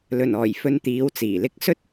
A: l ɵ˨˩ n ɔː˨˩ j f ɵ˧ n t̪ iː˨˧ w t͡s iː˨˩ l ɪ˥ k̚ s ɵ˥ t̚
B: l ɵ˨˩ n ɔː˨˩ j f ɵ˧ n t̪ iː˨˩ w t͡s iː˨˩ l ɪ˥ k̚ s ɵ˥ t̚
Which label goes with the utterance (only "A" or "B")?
A